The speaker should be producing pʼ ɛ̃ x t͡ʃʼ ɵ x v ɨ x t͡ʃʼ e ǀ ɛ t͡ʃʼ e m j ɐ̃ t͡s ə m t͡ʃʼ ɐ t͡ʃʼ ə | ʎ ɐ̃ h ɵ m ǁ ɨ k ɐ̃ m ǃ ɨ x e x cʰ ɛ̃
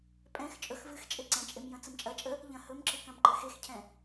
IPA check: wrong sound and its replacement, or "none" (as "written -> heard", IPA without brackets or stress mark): ɛ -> ɛ̃